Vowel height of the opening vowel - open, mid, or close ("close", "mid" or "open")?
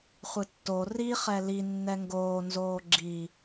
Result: close